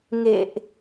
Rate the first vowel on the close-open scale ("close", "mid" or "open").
mid